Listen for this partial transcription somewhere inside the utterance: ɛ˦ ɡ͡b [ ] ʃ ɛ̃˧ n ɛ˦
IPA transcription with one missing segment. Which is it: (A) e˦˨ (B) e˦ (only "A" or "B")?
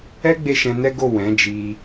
A